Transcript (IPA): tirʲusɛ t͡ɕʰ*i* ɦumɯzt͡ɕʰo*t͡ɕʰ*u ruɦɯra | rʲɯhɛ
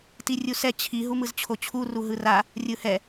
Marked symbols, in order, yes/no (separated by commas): yes, yes